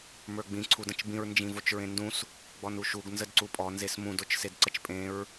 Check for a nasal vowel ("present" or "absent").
present